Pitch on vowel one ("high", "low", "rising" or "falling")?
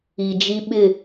low